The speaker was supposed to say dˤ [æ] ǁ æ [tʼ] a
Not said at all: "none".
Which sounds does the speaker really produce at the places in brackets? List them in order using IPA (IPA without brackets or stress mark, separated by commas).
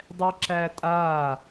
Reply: ɛ, tʼ